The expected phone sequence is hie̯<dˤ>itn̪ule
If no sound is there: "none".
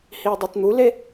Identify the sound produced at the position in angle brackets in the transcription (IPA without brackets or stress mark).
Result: dˤ